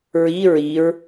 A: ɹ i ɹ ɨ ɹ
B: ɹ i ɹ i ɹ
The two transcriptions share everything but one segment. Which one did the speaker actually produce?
B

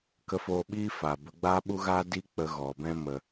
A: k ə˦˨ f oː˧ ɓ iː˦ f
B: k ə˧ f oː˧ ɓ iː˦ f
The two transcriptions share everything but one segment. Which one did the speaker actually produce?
B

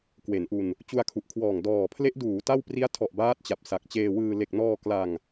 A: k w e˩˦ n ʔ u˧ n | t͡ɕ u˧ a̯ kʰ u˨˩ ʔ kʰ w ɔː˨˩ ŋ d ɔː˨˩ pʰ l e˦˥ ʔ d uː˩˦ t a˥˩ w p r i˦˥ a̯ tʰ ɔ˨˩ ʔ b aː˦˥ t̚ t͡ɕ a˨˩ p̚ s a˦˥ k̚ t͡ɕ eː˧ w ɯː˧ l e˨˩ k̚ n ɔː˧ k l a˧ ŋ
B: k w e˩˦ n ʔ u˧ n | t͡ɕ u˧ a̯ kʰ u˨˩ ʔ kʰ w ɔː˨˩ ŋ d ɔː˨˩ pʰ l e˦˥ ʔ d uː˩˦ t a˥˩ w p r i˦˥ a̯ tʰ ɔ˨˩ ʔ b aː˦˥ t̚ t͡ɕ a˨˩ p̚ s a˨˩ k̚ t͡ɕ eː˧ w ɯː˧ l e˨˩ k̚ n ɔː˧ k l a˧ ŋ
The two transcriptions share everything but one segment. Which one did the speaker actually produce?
B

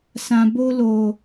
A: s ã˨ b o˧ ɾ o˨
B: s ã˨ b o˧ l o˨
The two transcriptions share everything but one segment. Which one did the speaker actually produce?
B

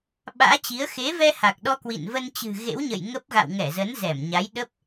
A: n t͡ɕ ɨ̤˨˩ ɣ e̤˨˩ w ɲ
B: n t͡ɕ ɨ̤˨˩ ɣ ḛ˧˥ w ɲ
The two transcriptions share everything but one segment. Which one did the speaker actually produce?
B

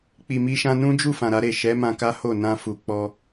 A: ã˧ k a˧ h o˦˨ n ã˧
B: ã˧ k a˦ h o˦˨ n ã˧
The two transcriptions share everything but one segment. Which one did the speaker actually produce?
B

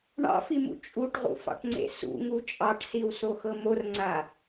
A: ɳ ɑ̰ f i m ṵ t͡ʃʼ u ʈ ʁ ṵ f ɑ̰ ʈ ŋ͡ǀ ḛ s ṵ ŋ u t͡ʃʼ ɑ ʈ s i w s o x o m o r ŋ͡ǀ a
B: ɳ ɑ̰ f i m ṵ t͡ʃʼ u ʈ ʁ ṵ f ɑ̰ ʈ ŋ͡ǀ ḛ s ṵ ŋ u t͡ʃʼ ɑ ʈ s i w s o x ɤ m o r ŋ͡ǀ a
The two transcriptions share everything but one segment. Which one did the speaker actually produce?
B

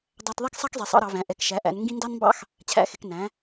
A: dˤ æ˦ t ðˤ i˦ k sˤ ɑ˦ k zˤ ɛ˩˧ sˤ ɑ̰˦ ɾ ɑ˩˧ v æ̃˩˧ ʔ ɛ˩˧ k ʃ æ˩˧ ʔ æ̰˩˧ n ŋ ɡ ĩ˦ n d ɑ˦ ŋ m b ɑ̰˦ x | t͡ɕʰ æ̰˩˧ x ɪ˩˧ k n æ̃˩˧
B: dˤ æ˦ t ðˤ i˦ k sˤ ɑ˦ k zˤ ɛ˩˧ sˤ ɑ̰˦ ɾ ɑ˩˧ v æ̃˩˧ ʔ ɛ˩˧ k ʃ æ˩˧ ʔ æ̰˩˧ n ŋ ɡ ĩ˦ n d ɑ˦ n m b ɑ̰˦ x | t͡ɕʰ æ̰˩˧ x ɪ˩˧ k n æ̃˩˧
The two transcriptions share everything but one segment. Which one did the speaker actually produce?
B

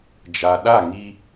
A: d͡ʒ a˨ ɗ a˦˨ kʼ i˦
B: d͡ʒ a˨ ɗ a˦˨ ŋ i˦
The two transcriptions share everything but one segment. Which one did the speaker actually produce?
B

